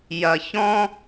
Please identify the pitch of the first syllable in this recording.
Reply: low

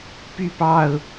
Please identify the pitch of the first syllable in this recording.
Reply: falling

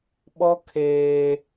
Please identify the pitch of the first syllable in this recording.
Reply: high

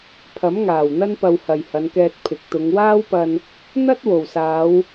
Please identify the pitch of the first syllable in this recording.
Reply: rising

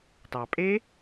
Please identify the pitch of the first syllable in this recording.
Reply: low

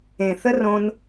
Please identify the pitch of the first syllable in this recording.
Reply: low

